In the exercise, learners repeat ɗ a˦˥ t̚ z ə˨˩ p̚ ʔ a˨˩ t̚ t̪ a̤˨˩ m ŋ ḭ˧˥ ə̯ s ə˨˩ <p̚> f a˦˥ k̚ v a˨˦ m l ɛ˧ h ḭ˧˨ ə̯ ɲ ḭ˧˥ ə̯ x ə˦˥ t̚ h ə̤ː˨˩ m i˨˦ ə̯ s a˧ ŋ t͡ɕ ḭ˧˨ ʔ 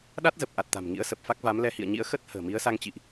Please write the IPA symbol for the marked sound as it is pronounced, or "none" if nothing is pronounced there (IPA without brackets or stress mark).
p̚